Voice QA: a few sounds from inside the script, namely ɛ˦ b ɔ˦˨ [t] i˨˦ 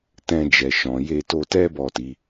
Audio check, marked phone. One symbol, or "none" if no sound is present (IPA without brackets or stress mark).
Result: t